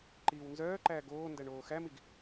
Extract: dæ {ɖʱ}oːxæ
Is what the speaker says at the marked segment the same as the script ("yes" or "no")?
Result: no